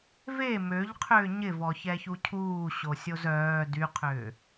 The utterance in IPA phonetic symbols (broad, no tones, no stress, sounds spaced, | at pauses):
v e m ø ʎ qʰ ʏː ɲ ɪ v ɔ ç ɛ ç u cʰ uː ɕ o sʲ o z œː d y qʰ ʏː